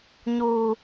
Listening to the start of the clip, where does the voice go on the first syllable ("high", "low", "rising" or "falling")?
low